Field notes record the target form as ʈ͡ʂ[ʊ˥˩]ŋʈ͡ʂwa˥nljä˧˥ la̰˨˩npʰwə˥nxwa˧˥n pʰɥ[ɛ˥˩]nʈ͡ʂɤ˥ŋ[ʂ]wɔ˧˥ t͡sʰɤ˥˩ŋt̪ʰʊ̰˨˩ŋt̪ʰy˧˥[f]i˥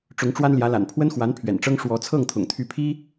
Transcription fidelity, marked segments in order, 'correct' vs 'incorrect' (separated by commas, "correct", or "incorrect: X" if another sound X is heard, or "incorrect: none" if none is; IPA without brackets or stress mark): incorrect: ʊ˧˥, incorrect: ɛ̰˨˩, correct, incorrect: pʰ